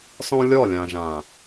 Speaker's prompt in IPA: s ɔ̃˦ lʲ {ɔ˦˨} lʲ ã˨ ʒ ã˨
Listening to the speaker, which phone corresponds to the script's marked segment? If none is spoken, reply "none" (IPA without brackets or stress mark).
ɔ˦˨